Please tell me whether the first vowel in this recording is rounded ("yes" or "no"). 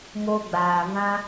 yes